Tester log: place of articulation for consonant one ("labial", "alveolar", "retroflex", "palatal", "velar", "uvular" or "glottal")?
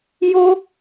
palatal